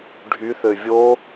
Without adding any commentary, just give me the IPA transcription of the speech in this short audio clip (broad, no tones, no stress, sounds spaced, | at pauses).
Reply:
ɖʱ y θ ø vʲ o